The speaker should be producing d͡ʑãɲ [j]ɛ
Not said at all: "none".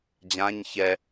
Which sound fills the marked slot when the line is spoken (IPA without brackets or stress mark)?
ç